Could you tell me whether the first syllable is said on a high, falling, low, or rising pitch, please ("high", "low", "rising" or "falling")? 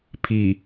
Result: low